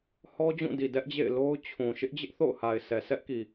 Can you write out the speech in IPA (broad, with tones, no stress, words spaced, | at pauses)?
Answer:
hɔ˦ d͡ʑũ˦˨di˨dɛ˦ʔd͡ʑḛ˦˨ɪ̯ lo˦ʊ̯t͡ɕʰũ˨ ʃɪ˦ʔd͡ʑɪ˦ʔθo̰˦˨ʊ̯ha˨ɪ̯ sɛ˨sɛ˦ʔki˨